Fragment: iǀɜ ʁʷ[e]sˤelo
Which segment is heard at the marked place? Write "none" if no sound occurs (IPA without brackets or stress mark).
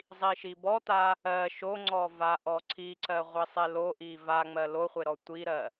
i